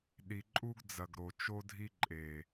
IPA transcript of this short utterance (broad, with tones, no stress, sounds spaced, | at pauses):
ɗ i˨ ǃʼ u˦ ɡ d͡z ɐ˨ ɡ ɾ o˨ t͡ʃ o˦ dʱ i˦ ǃʼ e˨